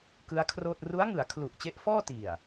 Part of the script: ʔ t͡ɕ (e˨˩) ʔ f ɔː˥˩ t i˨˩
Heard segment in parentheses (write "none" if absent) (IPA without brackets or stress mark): e˦˥